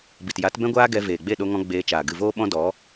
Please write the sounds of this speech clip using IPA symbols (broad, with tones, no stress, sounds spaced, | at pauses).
b i˨ t j a˨˦ t b ɛ̃˦ ɡʷ aː˦ ɡ ɛ˧ v eː˨ ɡ͡b e˦˨ ɗ o˧ ŋ ɔ̃˧ ɡ͡b eː˧ t͡ʃ aː˨ ɡ ɨ˨ v oː˧ ɓ ɔ̃˧ d ɔ˨˦